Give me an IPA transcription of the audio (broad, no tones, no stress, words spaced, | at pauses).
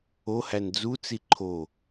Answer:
ohæn d͡zut͡si ǃʰo